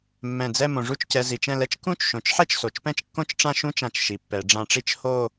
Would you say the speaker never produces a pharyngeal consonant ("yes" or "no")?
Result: no